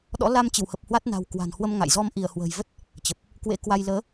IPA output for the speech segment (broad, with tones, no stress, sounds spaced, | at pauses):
ɗ ɔ̰˧˥ l a˧ m t͡ɕ ɨ˧˩ w h ə˨˩ p̚ h w a˦˥ t̚ n a̤˨˩ w k w a̤˨˩ n h w ə˧ m ŋ a̰˧˨ j z ɔ˧ m ʔ i˧˩ ə̯ h w ə̤ː˨˩ j v ə˦˥ t̚ | t͡ɕ ə˨˩ p̚ | k w ḛ˧˥ k w a˧ j l əː˨˦